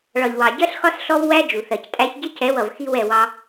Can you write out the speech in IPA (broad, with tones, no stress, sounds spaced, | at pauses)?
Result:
ɭ ɒ˨ ʎ w ɑ˨ ɟ ɜ˦ ɬ x ɒ˦ s ɬ ɔ˦ v w æ˦ d͡ʒ u˨ θ ɜ˨ c tʼ æ˦ ç ɟ ɪ˦ c ɛ˨˦ w ʌ˨ v x i˦ w ɛ˦˨ w ɑ˦